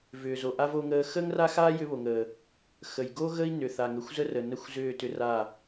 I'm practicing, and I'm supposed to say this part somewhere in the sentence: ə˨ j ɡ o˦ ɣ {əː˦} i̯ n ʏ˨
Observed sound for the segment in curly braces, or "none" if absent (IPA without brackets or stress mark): ə˦